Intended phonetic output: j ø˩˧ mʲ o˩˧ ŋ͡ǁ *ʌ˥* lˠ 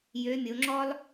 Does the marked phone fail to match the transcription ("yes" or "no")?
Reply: yes